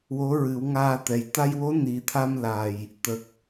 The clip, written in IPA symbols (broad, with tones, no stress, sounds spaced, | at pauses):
w o˧˥ ɹ ɨ˨˩˦ w ŋ aː˧ t̪ ɛ˨˩ j t̪ a˧ j w o˧˥ n i˨˩ t̪ʰ a˧ m l a˨˩ j | t̪ ə˨˩ k̚